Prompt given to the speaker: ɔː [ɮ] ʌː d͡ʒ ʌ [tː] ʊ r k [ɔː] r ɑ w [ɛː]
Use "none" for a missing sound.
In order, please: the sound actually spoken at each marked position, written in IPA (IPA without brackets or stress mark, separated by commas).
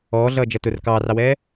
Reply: ɮ, t, ɑː, ɛː